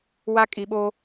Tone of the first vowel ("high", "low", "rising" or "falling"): high